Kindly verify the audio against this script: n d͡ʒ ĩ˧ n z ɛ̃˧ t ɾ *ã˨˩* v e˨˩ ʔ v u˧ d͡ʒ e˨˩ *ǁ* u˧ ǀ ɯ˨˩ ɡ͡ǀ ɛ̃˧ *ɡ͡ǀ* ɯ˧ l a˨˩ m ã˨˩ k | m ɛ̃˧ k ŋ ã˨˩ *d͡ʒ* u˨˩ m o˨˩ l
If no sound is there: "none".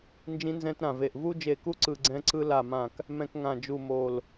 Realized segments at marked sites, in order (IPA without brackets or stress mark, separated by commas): ã˨˩, k, ǀ, d͡ʒ